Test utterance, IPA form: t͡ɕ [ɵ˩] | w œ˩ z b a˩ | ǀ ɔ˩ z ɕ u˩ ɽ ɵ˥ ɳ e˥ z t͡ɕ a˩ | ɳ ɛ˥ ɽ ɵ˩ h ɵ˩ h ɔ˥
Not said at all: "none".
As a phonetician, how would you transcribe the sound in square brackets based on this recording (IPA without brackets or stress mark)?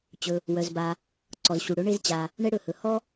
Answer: ɵ˩